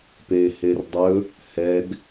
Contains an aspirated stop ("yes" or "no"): no